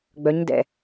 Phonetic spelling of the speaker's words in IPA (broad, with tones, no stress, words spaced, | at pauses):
ɡ͡bœ˨˦ɲdɛ̰˨